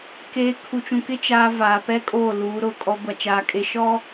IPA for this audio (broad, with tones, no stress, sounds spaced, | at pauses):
k eː˦ kʰ u˨ t͡ʃ ũ˨ k ɪ˦ t͡ʃ aː˦ v aː˨ p ɛ˦ kʼ oː˦˨ l uː˨˦ ɾ ʊ˨ kʼ ɔ˦ ɡʷ a˨ t͡ʃ aː˨ kʼ e˨ ʃ ɔ˦